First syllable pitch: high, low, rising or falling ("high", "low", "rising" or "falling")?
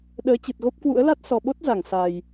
rising